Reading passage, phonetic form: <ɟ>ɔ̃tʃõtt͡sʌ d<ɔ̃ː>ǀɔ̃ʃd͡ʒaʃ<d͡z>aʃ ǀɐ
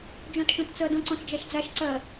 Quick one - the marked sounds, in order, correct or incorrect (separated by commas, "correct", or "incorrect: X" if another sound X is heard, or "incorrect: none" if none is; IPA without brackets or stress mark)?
incorrect: d͡ʒ, incorrect: ɔ̃, correct